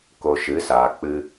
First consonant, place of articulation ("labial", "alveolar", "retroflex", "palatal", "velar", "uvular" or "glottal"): velar